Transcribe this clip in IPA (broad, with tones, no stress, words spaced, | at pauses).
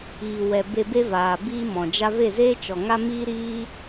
iː˨wɛ˨ be˧be˦vaː˨ biː˦mɔ̃˨d͡ʒa˦ ve˦˨zeː˦t͡ʃɔ˨ŋa˦ miː˦ɾiː˦